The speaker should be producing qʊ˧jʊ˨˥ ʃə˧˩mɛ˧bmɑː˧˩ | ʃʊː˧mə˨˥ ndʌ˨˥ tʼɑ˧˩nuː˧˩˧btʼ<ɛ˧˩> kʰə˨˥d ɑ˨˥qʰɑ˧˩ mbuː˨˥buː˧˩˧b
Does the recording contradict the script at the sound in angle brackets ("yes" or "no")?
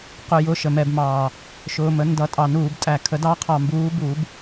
yes